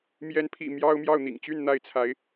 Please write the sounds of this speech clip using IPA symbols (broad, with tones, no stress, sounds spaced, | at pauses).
m j ɛ˧˥ n pʰ ḭ˨˩ m j ɑ˥ ʊ̯ m j ɑ˥˩ ʊ̯ n̪ ḭ˨˩ ŋ t͡ɕ y˥˧ n n̪ a˥˩ ɪ̯ t͡sʰ a˧˥ ɪ̯